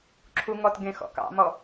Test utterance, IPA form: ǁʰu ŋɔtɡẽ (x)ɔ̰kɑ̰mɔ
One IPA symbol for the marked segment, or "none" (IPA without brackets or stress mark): x